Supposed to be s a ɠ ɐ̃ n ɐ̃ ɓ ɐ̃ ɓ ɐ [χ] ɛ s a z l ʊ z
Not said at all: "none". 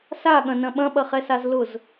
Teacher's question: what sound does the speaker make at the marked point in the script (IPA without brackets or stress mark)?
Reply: χ